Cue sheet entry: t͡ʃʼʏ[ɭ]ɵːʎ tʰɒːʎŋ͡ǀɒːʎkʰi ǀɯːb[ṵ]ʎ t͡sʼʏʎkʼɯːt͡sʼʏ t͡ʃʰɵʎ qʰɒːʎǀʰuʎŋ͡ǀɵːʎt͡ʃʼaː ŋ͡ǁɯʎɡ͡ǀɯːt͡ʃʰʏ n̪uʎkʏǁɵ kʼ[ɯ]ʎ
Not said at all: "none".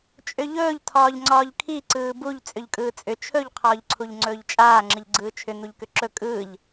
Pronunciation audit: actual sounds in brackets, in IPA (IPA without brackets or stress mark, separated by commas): ʎ, u, ɯː